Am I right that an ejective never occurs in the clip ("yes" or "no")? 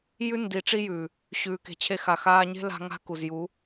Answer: yes